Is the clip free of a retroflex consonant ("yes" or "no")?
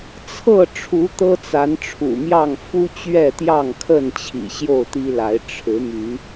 no